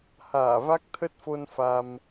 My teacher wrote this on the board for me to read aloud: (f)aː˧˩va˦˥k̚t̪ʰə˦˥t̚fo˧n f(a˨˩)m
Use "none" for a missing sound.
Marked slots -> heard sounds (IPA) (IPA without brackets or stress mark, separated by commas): h, a˧